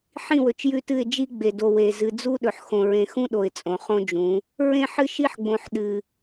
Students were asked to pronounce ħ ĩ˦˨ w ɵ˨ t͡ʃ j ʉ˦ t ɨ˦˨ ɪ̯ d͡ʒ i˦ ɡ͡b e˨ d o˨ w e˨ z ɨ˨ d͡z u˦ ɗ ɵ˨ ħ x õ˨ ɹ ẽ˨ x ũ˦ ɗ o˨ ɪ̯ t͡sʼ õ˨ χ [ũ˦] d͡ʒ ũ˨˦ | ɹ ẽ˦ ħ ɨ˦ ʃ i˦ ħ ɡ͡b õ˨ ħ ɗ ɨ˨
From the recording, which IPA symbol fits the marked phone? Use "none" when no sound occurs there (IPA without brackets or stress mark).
õ˦